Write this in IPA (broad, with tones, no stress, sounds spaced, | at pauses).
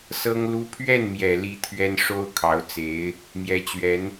s ɤ˥ ŋ l u˥ pʰ ɥ ɛ˥˩ n m j ɛ˨˩ l i˧˥ t̪ʰ ɥ ɛ˥ n ʂ o˥ ʊ̯ kʰ ɑ˧˥ ʊ̯ t͡s e˧˥ ɪ̯ | m j ɛ˧˥ t͡ɕ ɥ ɛ˧˥ n